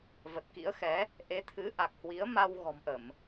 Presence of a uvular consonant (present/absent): absent